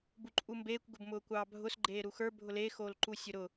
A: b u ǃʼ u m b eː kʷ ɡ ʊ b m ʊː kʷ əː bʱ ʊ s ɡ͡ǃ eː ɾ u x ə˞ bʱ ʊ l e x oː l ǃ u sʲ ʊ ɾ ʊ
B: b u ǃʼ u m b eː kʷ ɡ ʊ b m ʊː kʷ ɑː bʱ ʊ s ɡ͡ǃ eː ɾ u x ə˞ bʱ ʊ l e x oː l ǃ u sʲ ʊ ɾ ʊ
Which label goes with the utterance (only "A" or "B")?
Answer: B